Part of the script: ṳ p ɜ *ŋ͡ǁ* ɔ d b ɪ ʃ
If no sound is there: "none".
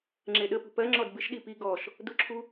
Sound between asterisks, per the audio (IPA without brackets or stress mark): ŋ͡ǁ